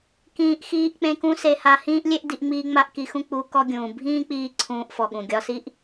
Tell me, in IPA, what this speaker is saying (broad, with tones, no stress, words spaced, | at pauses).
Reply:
kĩː˧ʔ xiː˧ʔ k͡pẽ˧kũ˧ se˧ha˧ hĩː˦ʔlʲe˦ʔdi˧ʔŋ͡miː˧ ŋ͡ma˦ʔki˧xũ˦ k͡pu˧ kɔ˦ɡʲũː˨ bʱĩː˦k͡piː˧ ǀʰũː˧ʔfɔ˨ɠũ˨ ɡʲɒ˧si˦ʔ